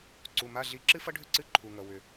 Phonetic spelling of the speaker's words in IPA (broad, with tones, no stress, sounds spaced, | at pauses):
ǀ u˩˧˩ m a˧˥˧ ɮ i˧˥˧ ǁ ɨ˥ f ʌ˥ ɖʱ ʏ˥ ǀ ɨ˧˥˧ ǃʰ u˩ ŋ ʌ˩ w ʏ˩